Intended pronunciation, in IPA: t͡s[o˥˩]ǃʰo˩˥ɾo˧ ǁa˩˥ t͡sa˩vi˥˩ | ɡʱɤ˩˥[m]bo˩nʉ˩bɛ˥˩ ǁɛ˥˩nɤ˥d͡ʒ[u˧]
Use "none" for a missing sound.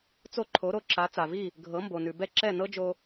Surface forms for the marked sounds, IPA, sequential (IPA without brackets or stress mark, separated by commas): o˥˩, m, o˧